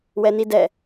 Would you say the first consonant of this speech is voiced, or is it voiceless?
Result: voiced